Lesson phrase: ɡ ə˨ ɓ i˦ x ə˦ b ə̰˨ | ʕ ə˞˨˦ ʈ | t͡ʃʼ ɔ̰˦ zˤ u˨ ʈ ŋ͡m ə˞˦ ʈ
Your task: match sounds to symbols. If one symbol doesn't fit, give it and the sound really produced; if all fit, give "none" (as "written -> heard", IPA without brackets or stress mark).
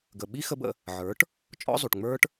ə̰˨ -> ə̰˧